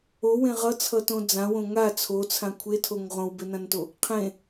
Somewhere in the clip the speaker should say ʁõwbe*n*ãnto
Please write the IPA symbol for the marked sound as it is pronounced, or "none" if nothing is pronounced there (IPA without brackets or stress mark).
n